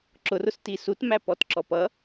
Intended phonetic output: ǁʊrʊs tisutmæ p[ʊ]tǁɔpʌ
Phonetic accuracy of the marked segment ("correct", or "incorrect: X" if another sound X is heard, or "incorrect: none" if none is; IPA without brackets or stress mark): incorrect: ɔ